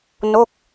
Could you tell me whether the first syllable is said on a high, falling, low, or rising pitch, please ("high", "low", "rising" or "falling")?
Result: falling